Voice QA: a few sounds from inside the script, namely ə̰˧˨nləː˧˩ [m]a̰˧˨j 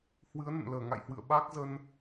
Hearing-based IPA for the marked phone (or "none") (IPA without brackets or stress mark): ŋ